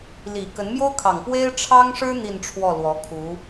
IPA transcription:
l i˨˩ k ə˧˥ n m j o˥ ʊ̯ kʰ ɑ˨˩ ŋ p w e˥ ɪ̯ ʈ͡ʂʰ ɑ˥ ŋ ʂ ɻ̩˥ n̪ i˥˧ n ʈ͡ʂʰ w ɔ˥˩ l w ɔ˧˥ kʰ u˧˥

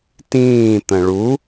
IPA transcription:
t ĩː t̪ ə̃ ɭ u

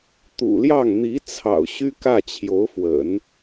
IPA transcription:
t̪ ṵ˨˩ l j ɑ˥˩ ŋ n̪ i˧˥ t͡sʰ ɑ̰˨˩ ʊ̯ ɕ y˥ k ä˥˩ t͡ɕʰ j o˧˥ ʊ̯ f w ə̰˨˩˦ n

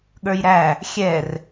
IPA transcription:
ɠ ə˞ j ɾ æ | xʲ ɛ r

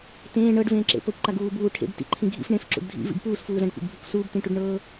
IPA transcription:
t ẽː ɳ ɤ ɖ v ẽː ǁ ḛ p ɤ kʷ ǃ a ɡ uː b uː ʈʰ ḛ b t ḭ ǃʰ ĩ ɡʱ ḭ f ɳ ẽ f ǁ ṵ ɖ dʱ ḭ v ḭ b p uː s f uː z ã ɖ kʷ ḛ ɡ bʱ ɯ kʷ s uː b t ĩ ʈ u ɖ ɳ ɤː

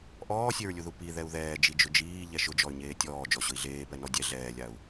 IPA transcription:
ʔ ɔː sʲ e ɹ lʲ u ð u p i ð ɛ u̯ ð ɛː d͡ʒ i d͡ʒ ʊ d͡ʒ iː ʎ ɛ ʃ ʊ d͡ʒ ɔ y̯ ɲ eː tʲ ɔː d͡ʒ ɔ ɕ ʊ i̯ ɮ eː p ɛ n ɔ dʲ ɛ ɮ ɛː lʲ a u̯

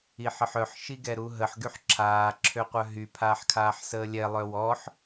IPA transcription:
i ħ ə ħ œ ħ ʃ i ɡ ɛ ɾ u ɦ ə ħ ɡ y ħ ǁʰ aː ǁʰ ø qʷ œ ɦ y pʰ aː ħ kʰ aː ħ s əː lʲ ɛ lˠ œ w ɔ ħ

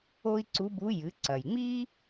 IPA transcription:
o˥ i̯ ǀ u˧˥ b u˧˥ j ɨ˩˧ ǀ ɐ˩ j ŋ͡m i˥

